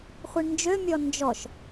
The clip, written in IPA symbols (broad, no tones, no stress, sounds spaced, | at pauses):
χʷ i ɳ n d͡ʒ ø mʲ ɔ n d͡ʒ ɔ ʃ